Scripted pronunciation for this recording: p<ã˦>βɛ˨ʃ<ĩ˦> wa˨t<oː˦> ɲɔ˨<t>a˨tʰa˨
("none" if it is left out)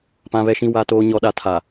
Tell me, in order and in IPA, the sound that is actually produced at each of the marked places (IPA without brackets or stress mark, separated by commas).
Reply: ã˨, ĩ˨, oː˨, ɗ